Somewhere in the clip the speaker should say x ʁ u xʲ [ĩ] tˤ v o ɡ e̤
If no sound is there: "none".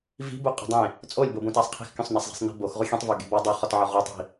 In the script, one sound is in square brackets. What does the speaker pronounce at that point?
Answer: ẽ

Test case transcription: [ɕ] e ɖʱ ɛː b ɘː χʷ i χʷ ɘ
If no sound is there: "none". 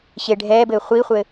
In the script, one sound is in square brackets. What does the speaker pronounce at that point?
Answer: ɕ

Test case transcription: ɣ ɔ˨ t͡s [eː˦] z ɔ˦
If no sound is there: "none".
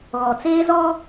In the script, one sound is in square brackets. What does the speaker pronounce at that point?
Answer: eː˦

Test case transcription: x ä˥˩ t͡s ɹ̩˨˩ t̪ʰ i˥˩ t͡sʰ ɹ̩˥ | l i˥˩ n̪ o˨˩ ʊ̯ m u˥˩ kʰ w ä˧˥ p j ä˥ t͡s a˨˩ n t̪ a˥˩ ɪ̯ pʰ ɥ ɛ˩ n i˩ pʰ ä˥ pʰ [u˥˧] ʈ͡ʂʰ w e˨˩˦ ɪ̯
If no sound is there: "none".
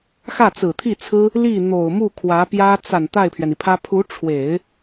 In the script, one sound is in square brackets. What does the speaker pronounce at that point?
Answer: u˧˥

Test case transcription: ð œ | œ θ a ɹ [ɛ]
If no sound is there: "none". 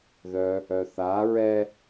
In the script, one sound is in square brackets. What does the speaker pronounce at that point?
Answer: ɛ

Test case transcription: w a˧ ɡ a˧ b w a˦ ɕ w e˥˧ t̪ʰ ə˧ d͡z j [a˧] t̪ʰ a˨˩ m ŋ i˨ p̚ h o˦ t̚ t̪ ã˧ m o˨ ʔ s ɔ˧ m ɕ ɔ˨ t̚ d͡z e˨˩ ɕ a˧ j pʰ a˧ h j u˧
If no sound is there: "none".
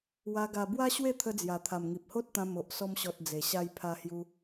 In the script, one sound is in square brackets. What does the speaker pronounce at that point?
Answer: a˨˩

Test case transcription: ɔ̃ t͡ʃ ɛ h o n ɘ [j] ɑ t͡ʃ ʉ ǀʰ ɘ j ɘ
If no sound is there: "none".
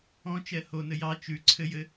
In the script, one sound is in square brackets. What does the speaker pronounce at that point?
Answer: j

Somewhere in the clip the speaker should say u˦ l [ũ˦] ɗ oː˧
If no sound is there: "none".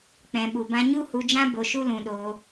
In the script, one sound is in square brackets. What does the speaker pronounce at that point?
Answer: ũ˧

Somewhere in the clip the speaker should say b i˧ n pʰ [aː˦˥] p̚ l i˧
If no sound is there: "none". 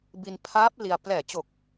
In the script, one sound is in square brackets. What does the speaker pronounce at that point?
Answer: aː˦˥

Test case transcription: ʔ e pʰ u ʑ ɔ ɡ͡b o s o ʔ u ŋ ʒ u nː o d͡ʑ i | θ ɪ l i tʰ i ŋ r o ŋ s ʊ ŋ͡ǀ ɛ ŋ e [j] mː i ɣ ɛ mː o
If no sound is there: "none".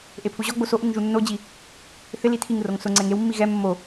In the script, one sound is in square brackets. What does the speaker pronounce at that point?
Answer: w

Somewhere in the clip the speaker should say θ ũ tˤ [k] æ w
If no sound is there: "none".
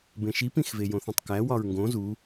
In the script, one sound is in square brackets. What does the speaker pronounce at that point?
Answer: k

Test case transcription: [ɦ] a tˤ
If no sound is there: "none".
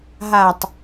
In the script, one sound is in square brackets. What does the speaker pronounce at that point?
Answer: ɦ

